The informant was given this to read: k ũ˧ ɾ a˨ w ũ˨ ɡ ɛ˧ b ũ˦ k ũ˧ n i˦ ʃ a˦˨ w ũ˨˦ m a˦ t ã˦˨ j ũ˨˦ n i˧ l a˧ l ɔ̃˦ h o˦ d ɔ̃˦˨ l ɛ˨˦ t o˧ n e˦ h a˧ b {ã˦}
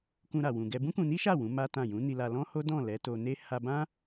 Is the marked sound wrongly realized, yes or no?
no